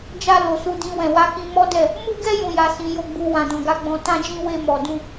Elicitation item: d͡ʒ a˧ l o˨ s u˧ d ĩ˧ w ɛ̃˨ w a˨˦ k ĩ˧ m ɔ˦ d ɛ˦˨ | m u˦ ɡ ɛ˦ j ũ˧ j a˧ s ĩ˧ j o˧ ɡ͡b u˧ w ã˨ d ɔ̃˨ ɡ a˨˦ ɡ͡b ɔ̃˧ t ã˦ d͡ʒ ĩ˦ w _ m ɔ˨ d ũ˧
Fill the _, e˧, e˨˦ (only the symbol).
e˧